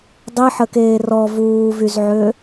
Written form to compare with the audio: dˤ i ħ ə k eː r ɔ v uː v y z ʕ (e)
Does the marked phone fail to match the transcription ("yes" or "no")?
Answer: yes